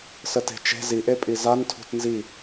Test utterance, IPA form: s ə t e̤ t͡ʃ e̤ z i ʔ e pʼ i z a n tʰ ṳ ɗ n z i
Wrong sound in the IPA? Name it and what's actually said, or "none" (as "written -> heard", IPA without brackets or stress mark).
ɗ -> t